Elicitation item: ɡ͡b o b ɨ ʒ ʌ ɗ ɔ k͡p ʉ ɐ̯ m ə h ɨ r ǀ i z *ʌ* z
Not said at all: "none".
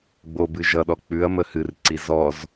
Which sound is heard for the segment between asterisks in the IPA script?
ɔ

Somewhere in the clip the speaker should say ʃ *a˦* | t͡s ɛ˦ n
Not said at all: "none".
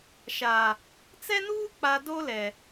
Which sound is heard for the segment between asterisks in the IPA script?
a˨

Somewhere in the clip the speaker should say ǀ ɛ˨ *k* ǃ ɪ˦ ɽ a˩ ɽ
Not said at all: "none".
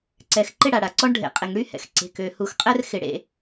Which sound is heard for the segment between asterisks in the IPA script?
x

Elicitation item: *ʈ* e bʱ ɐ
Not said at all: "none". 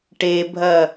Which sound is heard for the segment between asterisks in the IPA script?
ʈ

